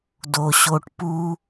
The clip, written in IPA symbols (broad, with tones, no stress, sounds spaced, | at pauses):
d o˨ ɕ o˧ ʈ p u˦